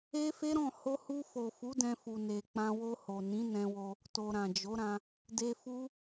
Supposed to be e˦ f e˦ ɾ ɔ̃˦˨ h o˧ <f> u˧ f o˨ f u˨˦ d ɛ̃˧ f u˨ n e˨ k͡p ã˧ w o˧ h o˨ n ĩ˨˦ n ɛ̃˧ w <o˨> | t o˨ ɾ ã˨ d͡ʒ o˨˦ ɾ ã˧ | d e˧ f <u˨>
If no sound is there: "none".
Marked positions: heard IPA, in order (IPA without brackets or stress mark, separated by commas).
h, o˧, u˦